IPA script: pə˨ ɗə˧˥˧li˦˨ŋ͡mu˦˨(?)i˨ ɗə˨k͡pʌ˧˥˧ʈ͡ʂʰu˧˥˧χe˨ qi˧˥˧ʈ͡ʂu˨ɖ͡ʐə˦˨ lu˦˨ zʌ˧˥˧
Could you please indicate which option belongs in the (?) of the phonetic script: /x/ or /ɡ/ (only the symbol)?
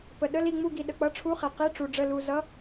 ɡ